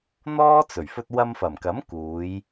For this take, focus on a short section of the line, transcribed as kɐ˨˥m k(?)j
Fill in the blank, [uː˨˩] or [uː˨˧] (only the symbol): uː˨˧